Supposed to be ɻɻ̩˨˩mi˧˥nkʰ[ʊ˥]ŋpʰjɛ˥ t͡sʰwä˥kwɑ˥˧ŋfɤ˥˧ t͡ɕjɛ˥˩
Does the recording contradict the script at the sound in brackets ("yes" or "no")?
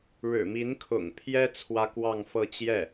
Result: yes